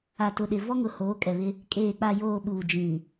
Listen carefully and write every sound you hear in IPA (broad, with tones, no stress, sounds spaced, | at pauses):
a˨ t ʊ˨ ɗ ɪ˨ v ɔ˦ ŋ ʊ˨ h oː˨˦ kʼ ɛ˨ β ɪ˦ | kʼ eː˨ k͡p a˨ j oː˨ ɓ uː˨ d͡ʒ ĩ˨